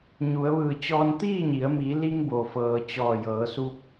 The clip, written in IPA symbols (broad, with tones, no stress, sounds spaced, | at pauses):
ɲ u˩˧ ə̯ ʋ ɯː˧˩ t͡ɕ ɔː˧ n t̪ iː˥˨ ɲ i˩˧ ə̯ m i˩˧ l i˧ ŋ b o˩ f ɤː˩ t͡ɕ ɔː˧˩ j ɤː˩˧ s u˧ p̚